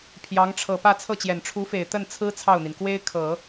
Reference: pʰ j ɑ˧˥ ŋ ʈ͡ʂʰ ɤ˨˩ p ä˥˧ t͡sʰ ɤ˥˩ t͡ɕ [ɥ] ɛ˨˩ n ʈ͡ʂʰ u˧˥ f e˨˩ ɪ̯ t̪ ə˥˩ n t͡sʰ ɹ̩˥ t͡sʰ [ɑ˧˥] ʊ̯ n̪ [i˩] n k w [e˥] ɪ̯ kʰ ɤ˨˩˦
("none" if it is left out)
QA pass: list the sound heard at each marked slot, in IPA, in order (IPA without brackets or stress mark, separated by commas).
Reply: j, ɑ˥˩, i˩, e˥